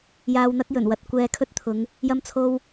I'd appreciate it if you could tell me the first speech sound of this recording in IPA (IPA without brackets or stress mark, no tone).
j